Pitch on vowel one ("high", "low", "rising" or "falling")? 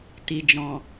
low